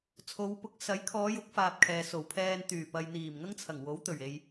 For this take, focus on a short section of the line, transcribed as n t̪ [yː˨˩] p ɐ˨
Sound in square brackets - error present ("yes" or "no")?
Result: no